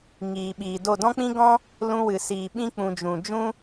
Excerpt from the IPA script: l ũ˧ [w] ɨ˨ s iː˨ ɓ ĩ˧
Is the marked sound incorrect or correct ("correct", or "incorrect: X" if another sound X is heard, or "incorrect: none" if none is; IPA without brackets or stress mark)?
correct